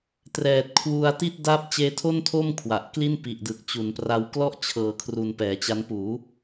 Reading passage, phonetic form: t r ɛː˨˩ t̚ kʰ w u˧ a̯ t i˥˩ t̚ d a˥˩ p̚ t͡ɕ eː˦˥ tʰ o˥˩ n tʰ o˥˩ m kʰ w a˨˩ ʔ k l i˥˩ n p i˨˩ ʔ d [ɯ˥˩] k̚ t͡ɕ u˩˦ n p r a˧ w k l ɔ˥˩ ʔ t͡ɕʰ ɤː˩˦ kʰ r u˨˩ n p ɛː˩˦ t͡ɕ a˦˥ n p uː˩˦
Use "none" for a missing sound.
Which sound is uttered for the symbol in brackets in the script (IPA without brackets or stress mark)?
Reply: ɯ˨˩